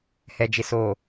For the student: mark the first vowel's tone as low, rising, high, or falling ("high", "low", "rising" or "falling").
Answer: low